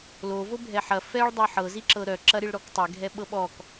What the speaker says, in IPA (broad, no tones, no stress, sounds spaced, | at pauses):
l o v o bʱ ɛ ħ ɐ f ɛ ɭ dˤ ɤ ħ ɤ z i ǁ ɤ ɾ œ ǁ ɐ ɾ i ɭ ɾ ɔ k tˤ ɛ ɡʱ ɛ ɓ ɤ ɓ ɔ k